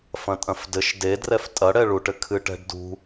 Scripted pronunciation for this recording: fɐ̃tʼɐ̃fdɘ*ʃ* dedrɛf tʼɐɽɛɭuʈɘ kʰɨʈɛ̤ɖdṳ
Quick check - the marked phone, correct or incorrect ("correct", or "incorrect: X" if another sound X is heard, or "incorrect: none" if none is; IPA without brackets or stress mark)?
correct